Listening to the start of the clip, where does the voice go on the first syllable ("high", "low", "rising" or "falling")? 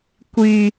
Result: low